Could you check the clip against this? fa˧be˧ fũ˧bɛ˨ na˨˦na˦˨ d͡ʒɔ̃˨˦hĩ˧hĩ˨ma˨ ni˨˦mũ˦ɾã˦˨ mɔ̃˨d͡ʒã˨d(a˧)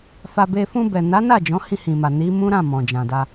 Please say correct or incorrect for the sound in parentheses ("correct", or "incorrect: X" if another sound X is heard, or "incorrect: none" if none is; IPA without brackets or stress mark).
correct